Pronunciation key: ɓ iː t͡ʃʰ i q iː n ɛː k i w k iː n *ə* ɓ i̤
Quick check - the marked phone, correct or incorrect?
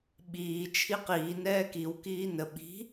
correct